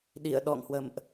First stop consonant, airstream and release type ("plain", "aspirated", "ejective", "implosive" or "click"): implosive